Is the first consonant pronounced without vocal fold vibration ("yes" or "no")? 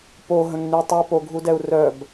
yes